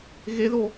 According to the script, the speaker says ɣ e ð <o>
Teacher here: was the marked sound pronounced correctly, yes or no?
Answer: yes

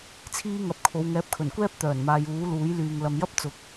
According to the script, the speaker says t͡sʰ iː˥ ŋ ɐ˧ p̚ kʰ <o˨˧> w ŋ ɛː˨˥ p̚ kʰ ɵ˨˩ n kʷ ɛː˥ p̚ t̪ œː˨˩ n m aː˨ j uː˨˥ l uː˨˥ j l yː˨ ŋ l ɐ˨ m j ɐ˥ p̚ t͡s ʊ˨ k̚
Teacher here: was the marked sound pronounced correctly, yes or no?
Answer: yes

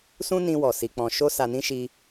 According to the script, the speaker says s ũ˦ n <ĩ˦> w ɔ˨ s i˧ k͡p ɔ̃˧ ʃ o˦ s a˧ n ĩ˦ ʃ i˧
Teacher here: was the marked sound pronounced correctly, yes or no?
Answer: no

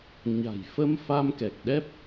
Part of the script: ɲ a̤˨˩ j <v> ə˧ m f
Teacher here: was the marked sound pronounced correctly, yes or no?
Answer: no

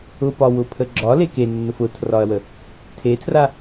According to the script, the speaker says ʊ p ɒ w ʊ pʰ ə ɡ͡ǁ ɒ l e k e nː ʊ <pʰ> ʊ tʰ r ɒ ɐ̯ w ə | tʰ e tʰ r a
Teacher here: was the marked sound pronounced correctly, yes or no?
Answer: no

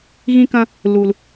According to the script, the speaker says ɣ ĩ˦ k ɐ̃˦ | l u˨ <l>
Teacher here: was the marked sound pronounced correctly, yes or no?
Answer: yes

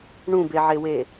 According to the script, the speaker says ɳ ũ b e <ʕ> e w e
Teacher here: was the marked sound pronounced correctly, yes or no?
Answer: yes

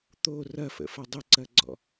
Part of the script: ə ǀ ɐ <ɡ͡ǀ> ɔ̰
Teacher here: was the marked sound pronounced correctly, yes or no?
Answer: yes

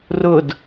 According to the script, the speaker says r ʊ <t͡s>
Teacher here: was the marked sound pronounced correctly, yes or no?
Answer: no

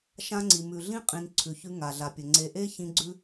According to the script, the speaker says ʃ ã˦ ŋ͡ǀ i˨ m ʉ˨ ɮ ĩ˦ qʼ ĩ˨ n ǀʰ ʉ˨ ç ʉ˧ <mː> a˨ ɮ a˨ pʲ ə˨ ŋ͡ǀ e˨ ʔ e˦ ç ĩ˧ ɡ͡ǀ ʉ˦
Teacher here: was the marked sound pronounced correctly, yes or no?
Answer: no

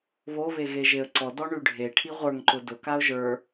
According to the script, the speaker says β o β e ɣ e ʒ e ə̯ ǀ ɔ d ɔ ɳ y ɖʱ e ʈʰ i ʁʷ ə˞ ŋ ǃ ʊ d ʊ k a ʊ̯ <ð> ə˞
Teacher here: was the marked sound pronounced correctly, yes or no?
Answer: no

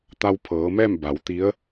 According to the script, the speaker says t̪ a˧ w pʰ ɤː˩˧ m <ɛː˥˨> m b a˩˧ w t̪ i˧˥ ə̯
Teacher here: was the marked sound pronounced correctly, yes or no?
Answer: yes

